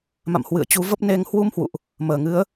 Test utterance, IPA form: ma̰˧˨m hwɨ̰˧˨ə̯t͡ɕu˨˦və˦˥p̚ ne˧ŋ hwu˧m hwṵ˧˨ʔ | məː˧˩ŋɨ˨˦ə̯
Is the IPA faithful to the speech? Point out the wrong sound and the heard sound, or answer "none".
none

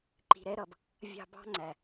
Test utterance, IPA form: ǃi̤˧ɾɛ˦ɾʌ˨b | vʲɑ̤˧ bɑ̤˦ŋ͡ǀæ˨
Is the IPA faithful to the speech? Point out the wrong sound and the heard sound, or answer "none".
none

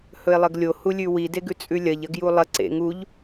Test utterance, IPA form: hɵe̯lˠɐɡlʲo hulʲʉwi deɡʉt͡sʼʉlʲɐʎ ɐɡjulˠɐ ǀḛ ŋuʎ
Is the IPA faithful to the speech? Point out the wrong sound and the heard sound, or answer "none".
none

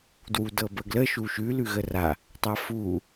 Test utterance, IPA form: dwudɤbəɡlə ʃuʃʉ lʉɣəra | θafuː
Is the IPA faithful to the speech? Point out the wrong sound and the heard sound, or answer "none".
θ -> tˤ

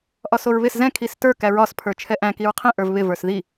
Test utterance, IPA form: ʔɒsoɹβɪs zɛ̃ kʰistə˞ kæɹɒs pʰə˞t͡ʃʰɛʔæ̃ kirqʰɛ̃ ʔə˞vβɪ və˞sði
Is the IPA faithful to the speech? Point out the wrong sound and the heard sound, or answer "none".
r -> ɹ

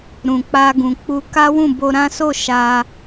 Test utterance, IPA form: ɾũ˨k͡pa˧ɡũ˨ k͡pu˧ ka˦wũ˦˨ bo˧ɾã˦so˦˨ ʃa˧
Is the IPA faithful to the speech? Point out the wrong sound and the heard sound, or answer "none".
none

